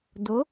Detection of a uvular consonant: absent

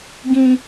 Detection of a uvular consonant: absent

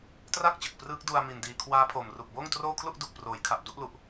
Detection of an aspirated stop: present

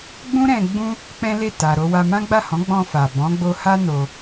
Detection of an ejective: absent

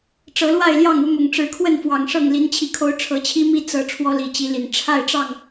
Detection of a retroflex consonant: present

